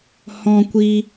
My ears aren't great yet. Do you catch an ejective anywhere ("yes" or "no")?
no